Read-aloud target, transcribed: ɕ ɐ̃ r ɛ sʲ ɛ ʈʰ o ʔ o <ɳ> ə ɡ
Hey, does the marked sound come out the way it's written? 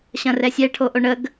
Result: yes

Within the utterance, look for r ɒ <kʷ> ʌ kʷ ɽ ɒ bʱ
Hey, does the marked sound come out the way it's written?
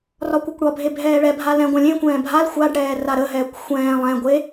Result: yes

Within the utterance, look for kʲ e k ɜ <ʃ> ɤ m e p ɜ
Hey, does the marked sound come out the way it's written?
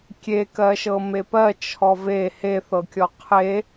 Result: yes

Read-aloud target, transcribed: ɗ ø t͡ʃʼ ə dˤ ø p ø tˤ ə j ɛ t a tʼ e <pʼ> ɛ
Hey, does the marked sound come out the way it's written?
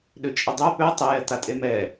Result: no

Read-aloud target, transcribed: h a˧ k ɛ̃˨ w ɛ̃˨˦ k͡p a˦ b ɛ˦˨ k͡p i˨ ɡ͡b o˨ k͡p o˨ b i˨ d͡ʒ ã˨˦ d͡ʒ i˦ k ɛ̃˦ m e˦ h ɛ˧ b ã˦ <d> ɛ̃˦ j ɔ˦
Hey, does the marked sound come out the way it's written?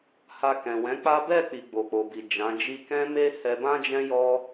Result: no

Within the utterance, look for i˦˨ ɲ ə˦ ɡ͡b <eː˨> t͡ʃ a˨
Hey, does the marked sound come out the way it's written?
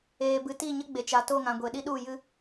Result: no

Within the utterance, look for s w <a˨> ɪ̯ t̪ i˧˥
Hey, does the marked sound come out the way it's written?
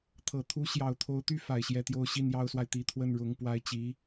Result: yes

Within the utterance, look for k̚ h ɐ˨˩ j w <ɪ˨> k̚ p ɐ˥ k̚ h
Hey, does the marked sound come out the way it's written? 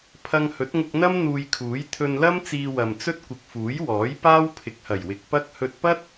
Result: yes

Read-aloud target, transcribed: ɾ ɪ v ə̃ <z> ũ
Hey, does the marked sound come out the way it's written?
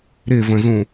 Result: yes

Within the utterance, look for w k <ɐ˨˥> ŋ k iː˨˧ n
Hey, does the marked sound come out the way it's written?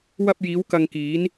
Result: no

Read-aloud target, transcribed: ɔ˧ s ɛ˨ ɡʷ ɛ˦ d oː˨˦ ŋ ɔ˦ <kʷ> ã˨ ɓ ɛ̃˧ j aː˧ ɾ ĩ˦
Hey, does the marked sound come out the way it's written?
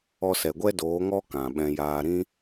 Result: no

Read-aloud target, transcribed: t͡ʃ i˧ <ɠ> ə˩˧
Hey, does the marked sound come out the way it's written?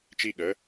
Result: yes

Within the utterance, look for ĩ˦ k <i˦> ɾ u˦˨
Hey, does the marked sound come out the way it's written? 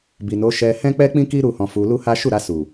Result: yes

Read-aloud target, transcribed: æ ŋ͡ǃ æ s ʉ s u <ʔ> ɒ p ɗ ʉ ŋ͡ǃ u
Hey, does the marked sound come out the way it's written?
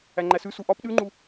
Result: yes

